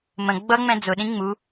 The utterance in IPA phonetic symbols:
m ə̃ ɡ͡b ʌ ŋ͡m ɛ̃ d͡z ʊ ɗ ĩ ŋ͡m u

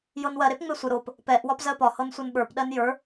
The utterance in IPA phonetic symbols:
j ɤ n w ɜ ɾ e p ŋ͡m e sʷ ə ɾ o p | p ɛ ʔ w ɒ p z ɜ p ɒ h ɤ n sʷ ɤ n ɓ ə˞ p ɗ ɜ n j ə˞

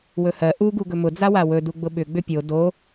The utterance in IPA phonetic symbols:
w ɵ h ɜ ʔ u ɡ u ɡ ɵ m ʊ d͡z a w a w ɵ d u ɡ͡b ʊ ɓ ʏ ɡ͡b ʏ pʲ o d o

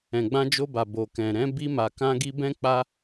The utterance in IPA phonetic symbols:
ɛ̃˨ ɡ͡b ã˧ d͡ʒ o˧ b a˨ b o˨ k ɛ̃˨ ɾ ɛ̃˨˦ b i˧ m a˨ k ã˧ ɡ i˧ b ɛ̃˦ k͡p a˦

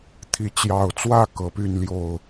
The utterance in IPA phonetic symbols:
t̪ʰ i˨˦ t͡ɕ j ɑ˨˩ ʊ̯ t͡s w ä˥˨ k ɤ˨˦ p y˥˨ n l j o˥˨ ʊ̯

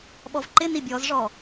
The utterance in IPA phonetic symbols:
ɓ ɔ v ǃ ɪ n i bʲ ɔ z ʐ ɔ

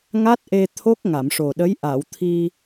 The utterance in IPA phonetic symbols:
ŋ a˦˥ t̚ ʔ e˧ t̪ʰ o˦˥ k̚ ŋ a˨˩˨ m ʂ o˨˩ ɗ ə˧˥ j ʔ a˨˩˨ w t̪ʰ i˧

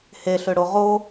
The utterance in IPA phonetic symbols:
h e ɬ ø ɽ o ʁ o

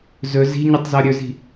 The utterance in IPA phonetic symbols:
z ɵ z i̤ ɲ u tˤ z ɔ ɾʲ ɵ z i̤

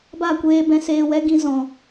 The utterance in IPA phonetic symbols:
b a˦˨ kʷ eː˧ b ɛ̃˧ s eː˧ w ɛ˦ ɡ ĩ˧ z ɔ̃˨

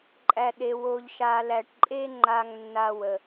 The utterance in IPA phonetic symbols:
ǃʼ æ˧ ɗ e˧ w o˧ ʎ ʃ a˧ l æ˧ ʈ ǃʼ e˥ ŋ͡ǃ a˥ ŋ nː a˥ w ə˧

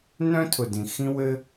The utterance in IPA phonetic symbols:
n œ̃˥ tʰ ʊ˩ d ĩ˩ x ĩ˥ w ɘ˥

